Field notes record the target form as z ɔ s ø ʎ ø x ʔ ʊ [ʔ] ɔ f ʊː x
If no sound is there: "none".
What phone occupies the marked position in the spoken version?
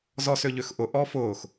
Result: ʔ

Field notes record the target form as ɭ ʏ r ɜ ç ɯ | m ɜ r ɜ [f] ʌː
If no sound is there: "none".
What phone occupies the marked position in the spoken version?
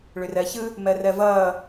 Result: v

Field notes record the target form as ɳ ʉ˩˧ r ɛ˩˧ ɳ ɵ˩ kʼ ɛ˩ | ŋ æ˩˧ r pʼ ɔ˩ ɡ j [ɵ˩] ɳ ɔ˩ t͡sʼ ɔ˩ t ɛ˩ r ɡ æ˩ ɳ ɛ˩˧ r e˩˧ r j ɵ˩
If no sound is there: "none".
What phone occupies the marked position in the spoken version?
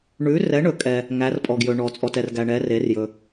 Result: ɵ˩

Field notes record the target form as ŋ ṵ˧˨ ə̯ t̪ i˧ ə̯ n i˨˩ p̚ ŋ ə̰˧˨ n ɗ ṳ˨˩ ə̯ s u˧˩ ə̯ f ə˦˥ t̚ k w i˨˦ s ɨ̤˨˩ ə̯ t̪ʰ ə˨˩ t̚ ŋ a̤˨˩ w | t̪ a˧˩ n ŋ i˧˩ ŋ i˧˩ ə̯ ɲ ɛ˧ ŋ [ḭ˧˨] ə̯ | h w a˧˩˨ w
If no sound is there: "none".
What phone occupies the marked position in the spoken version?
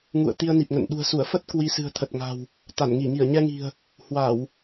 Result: i̤˨˩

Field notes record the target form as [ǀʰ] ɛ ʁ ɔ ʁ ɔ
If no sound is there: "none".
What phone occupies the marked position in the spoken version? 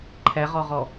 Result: ǃʰ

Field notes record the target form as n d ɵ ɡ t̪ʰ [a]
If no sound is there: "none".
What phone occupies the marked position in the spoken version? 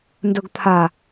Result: a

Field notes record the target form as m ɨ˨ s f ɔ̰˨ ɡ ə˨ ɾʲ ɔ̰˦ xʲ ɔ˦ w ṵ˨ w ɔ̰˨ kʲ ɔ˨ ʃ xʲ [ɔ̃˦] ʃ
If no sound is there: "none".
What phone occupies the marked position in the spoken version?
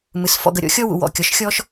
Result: ɔ˦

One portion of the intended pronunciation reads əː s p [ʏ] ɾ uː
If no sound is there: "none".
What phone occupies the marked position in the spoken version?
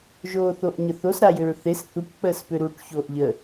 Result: ʏ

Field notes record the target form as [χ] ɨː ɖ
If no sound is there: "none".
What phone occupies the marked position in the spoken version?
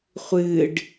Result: χʷ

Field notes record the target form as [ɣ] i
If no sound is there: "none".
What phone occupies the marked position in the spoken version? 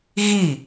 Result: ɣ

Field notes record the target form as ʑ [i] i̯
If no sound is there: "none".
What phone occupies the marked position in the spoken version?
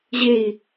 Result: e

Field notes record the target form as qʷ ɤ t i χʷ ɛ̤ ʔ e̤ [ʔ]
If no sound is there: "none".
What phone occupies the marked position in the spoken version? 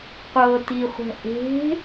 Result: none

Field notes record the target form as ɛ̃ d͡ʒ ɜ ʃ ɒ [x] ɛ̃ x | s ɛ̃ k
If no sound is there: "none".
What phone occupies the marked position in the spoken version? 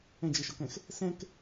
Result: k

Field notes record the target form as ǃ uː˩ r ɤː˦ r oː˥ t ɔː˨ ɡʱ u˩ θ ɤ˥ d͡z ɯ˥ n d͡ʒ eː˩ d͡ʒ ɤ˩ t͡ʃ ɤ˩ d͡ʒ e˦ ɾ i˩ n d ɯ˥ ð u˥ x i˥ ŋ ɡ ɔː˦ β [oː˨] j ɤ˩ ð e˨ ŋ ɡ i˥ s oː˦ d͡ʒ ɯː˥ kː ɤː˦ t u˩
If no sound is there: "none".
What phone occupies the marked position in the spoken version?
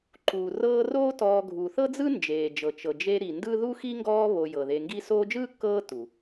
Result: o˨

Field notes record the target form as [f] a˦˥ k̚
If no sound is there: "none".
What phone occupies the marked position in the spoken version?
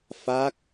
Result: f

